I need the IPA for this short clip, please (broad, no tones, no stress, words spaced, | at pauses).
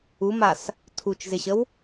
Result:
umas | tʰut͡ʃzɪɕəw